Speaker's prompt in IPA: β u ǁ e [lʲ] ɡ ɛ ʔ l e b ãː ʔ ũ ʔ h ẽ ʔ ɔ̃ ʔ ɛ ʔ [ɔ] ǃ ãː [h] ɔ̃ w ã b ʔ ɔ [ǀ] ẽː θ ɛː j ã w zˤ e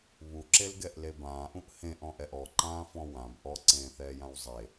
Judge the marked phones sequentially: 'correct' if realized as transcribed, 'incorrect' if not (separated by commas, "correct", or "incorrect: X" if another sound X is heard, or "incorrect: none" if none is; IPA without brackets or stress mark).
incorrect: l, correct, incorrect: f, correct